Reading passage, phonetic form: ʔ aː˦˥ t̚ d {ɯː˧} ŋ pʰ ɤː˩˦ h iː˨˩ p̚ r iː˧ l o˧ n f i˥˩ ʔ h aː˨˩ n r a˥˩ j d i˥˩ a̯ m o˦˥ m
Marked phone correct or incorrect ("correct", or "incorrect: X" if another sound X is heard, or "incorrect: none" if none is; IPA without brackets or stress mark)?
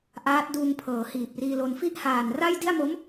incorrect: uː˧